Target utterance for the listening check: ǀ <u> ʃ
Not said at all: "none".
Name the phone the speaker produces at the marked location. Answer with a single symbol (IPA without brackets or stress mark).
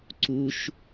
u